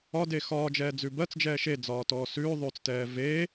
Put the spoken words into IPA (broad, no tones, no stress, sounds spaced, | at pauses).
ɒ d e x ɒː d͡ʒ ɛː d͡z ʉ b ɜ t͡s d͡ʒ ɛː ʃ e d͡z ɒː t ɔː s ʉː ðˤ ʉː t͡s t ɛː v e